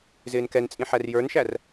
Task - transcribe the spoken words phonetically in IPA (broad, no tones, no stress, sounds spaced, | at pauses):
z ɪː n k ɛ n t͡sʼ ĩ ħ æ r j ə˞ n ʃ æ r